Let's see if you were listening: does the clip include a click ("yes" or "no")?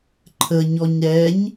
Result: yes